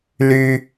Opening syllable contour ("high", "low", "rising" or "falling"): low